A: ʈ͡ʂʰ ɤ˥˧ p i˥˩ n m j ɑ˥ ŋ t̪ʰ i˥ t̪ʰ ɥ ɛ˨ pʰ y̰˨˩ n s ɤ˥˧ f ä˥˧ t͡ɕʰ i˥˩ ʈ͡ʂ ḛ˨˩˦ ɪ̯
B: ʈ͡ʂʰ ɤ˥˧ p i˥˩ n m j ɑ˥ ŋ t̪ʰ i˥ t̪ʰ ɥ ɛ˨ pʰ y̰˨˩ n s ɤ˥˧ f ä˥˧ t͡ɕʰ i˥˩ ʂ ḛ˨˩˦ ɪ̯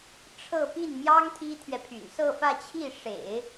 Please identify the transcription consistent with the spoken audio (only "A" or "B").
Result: B